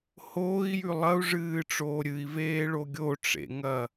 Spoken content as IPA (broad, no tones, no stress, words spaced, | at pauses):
hoːi̯jʉ lˠɐu̯ʐɨːʈ͡ʂoː ɾʲɨi̯veːɭo ɡʲoʈ͡ʂḛŋɐ